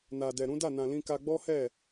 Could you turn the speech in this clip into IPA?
na˨dɛ˨ɾũ˨˦ da˦˨nã˨lĩ˧ ka˧ɡ͡bɔ˦hɛ˦˨

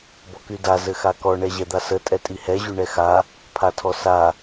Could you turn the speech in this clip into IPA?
bɔkyda zɘxakɔ ɳɛʑɛd̪asə tʼɛtʼihɛ ʑyɳɛxa | pʰatʰɔsa

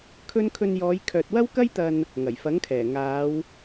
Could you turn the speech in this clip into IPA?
kʰɵ˥n kʰɵ˧njɔː˨˧jkʰœː˨t̚ wɐ˥wkɐ˥jt̪ɐ˧n | ŋɐ˨˩jfɐ˨˥ŋkʰɛː˨˩ ŋaː˨˧w

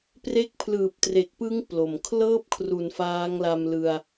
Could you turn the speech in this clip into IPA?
pre˥˩k̚ pʰlɯː˨˩p̚tre˨˩k̚pɯ˦˥ŋ plo˨˩m kʰlɤː˥˩p̚kʰru˩˦n faː˦˥ŋla˧mlɯ˧a̯

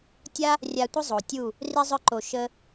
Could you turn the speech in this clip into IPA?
tʲa˦ | rʲa˧tʷə˦ zˤo˨tʲu˦˨ | ri˧zˤœ˧ǃo˨ ʃə˧

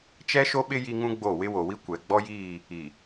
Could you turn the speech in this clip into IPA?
t͡ʃɛ˦ʃo˦ɓɪ˦ ji˦ŋũ˦ɡ͡bo˦˨ wɪ˦wo˨wi˦ kʷɛ˨ ɡ͡bɔ˦jiː˦˨ | i˨

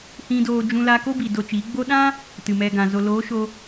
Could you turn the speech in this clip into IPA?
hĩ˧doː˧ d͡ʒũ˧la˧ ko˦bi˨ do˧t͡ʃi˨˦ ɡ͡bo˦ ɗã˦ | tɨ˨mɛ˧ ɡã˨zo˧ loː˨˦ʃo˧

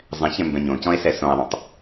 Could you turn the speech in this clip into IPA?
zˤɛ̃çɛ̃ mbɛ̃ɲõcɔ̃e̯ sɛsõe̯ðˤõtˤ

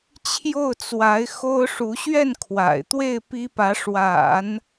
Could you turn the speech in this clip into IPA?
t͡ɕʰjo˥˩ʊ̯t͡swa˧˥ɪ̯ xo˥ʊ̯ʂu˧˥ ɕɥɛ˥˩n kʰwa̰˨˩ɪ̯t̪we˥˩ɪ̯ pi˥pä˧˥ʂwa̰˨˩˦n

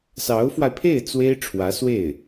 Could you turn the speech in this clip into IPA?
sɑ˧˥ʊ̯fwa˧ɪ̯pʰe˥˩ɪ̯ t͡swe˥ɪ̯ʈ͡ʂʰwä˧˥swe˥˩ɪ̯

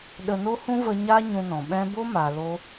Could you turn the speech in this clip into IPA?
ɗə˧no˦hũ˦ və˧ ɲa˦ ɲũ˧nɔ̃˨ ɓɛ̃˦ bo˦ma˨ lo˦

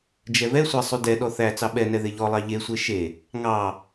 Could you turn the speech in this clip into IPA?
d͡ʒɛvɛsʷæ sˤydɛɗɔ θæ t͡sɑɓɛnɛ ðeʎɔlˠɑ ʎesʷe ʃe | ŋɑ

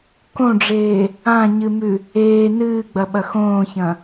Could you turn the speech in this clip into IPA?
kõɖ͡ʐeː | ãɲɨmʉ | eː nɨːɡ͡bɐɓɐ xõːçɐ̃

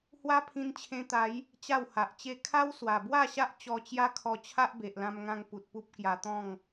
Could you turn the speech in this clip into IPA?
hwa˦pʰĩ˧nt͡ɕʰẽ˧t̪a˨˦j | t͡ɕa˥˧wha˨ʔt͡ɕe˥˧ kʰa˦wswa˨˩bwa˥˧ɕa˦ʔ t͡ɕɔ˧t͡ɕja˦kʰɔ˧ t͡ɕʰa˦ʔbe˨ʔlã˧mŋã˧ŋ pu˨t̚pu˦p̚ kja˧t̪ɔ̃˥˧ŋ

